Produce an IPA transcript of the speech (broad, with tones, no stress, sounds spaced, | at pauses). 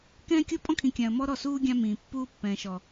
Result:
k ɛ̃ː˦ kʲ o˦ pʼ ɔ̃˦ kʰ ĩ˨ kʲ ã˨ ə̯ m ɔ˦ ɾ ɔ˦˨ s uː˦ ɡʲ ã˦ m ĩː˨ pː uː˦ pː ɛ̃ː˨ ʃ ɔ˨